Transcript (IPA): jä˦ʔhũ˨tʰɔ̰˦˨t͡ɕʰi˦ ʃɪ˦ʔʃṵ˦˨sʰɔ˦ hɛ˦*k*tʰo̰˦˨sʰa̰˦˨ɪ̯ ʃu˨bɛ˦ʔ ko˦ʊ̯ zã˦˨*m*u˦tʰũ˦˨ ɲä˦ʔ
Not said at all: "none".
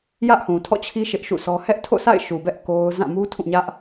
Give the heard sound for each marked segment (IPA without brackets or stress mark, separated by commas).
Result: ʔ, m